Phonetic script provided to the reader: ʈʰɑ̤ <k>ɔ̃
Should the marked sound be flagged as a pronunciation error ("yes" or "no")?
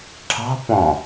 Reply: yes